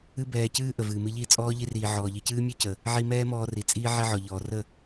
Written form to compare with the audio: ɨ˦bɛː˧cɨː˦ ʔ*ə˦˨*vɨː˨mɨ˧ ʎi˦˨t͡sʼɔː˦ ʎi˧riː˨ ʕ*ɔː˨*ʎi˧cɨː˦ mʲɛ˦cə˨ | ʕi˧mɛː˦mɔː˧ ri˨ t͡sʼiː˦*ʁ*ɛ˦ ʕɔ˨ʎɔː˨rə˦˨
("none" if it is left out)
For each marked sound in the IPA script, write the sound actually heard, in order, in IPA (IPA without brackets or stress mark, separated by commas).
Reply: ə˨, ɔː˨, ʕ